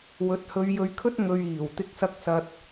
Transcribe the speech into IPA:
w ɵ˨˥ t̚ h ɵ˨˧ ɥ j ɵ˨˧ ɥ kʰ ɵ˥ t̚ ŋ ɵ˧ ɥ iː˨˩ w t̪ ɪ˧ k̚ s ɐ˧ k̚ s ɐ˨ t̚

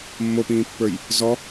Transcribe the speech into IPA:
mː o p ĩː pː ə˞ j | z ɔ

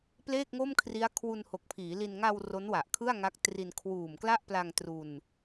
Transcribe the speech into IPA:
p l eː˥˩ k̚ ŋ o˥˩ m kʰ r i˦˥ a̯ kʰ w u˧ n h o˨˩ k̚ pʰ iː˩˦ l i˧ n ŋ a˧ w r o˦˥ n w a˨˩ ʔ kʰ ɯ˥˩ a̯ ŋ a˦˥ k̚ t r i˧ n kʰ w uː˨˩ m k l a˥˩ ʔ p l a˧ ŋ t r u˧ n

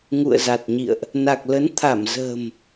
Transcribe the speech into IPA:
ŋ ṵ˧˨ ə̯ z a˨˩ t̚ ɲ ḭ˧˨ ə̯ ʔ | n a˨˩ k̚ l ə˨˦ n t̪ʰ a˧˩ m z ə̤ː˨˩ m

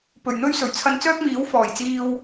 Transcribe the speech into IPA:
p ɵ˨˩ ɥ n̪ ɵ˥ ɥ s ɵ˨˩ ɥ t͡sʰ ɐ˧ n t͡s œː˥ k̚ m iː˨˥ w f ɔː˨˩ j t͡s iː˧ w

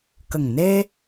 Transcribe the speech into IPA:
k ə˨˩ ŋ n e˧

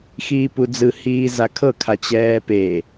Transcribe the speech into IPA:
x iː p u d͡z ɯ h iː z a kʰ ɤ kʰ a t͡ɕ ɛː p e

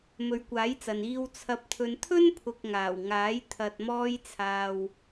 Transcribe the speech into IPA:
m ɵ˨ ɥ kʷ aː˨˥ j t͡s ɐ˨ n iː˧ w t͡sʰ ɐ˧ p̚ t̪ʰ ɵ˧ n t̪ʰ ɵ˥ n pʰ ʊ˨ k̚ ŋ aː˨˩ w ŋ aː˨˥ j t̪ʰ ɐ˨ t̚ m ɔː˧ j t͡sʰ aː˨ w

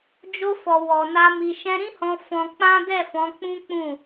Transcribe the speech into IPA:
d͡ʒ o˧ f ɔ˨ w ɔ˨ n a˧ m i˨ ʃ ɛ̃˧ ɾ ĩ˦ h ɔ̃˧ f ɔ̃˧ k͡p ã˦ d ɛ˦˨ f ɔ̃˨˦ k͡p ũ˦ k͡p ũ˦˨

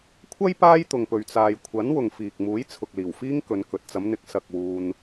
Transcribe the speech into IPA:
kʷʰ ɐ˥ j p aː˥ j t̪ ʊ˨ ŋ p ɵ˨ ɥ t͡s aː˨ j kʷʰ ɐ˨˥ n w ʊ˨ ŋ f iː˨ k̚ m uː˨˥ j t͡sʰ ʊ˨ k̚ l iː˨˩ w f iː˥ ŋ k ɵ˨˧ n k ɵ˨ t̚ t͡s ɐ˨˧ m n̪ ɪ˨˥ k̚ s ɐ˨ k̚ w uː˧ n

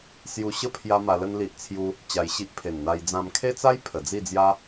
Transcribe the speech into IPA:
s j u˧ ɕ ə˦ pʰ j a˦ m a˧ l ə˦ n l i˦ ʔ t͡sʰ j u˦ | t͡ɕ a˧ j ɕ i˦ ʔ pʰ e˨˩ n n̪ a˧ j d͡z ã˧ m kʰ e˦ t͡s a˦ j pʰ ə˨˩ d͡z i˥˧ d͡z j a˦

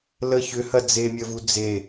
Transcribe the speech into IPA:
l ə ç ʏ h ɐ d͡z e mʲ ə v u d͡z e

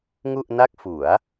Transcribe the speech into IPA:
ŋ u˥˩ ʔ n a˥˩ k̚ f u˩˦ a̯

